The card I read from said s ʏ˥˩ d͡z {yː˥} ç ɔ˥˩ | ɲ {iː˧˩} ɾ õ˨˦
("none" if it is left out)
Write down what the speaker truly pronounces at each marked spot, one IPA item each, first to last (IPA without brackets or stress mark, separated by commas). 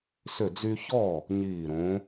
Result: y˥, iː˧˩